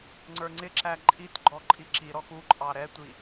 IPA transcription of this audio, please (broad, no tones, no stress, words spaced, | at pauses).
ŋ͡ǀə˞ŋ͡ǀɪǁæ ǃʼitɡ͡ǃɔ ǃʼiǁiɾɔx uǃʼɑ ɾɛtʷi